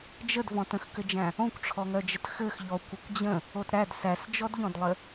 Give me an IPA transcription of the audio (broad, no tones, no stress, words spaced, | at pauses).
d͡ʒəd vɔ̃tə̃xkɘd͡ʒæ̃ | õkʷʈ͡ʂʰɔŋœd͡ʒət xɘx ʎɔ kʷɘkʷd͡ʑə̃ | otɾæd sæsd͡ʒɔdʎɔ̃dlˠɘ